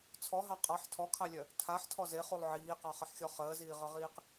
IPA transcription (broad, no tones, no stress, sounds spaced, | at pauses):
t͡sʰ ɔ ɦ ɑ qʼ ɑ ħ tʰ ɔ kʰ ɑ lʲ œ | tʰ a ħ tʰ ɔ z e χ u lˠ ʕ iː q ɑ χ ə ħ xʲ ɔ χ əː z iː ʁ ɤ ʁ iː q